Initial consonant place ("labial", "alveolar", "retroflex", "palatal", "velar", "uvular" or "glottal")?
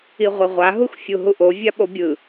uvular